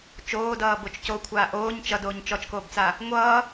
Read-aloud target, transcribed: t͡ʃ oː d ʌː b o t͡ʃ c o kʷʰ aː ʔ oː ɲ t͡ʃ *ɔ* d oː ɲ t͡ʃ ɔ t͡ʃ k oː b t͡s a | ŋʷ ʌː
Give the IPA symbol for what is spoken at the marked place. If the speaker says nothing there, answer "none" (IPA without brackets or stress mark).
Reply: ʌ